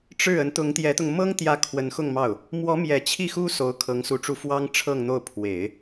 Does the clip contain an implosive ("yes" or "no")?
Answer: no